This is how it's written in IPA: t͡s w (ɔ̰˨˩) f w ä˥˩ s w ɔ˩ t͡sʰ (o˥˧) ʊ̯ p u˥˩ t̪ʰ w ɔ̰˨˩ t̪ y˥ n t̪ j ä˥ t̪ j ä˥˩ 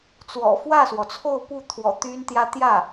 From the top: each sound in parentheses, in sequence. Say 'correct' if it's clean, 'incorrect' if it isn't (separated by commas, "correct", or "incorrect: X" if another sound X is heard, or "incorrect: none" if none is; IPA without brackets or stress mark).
correct, correct